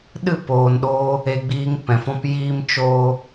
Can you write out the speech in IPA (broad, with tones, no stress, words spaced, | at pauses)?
ɗɨ˦˨poː˨nɗoː˧ | e˧ ɡ͡biː˧ŋ pɛ̃˨fɔ̃˦p jiː˧mt͡ʃoː˧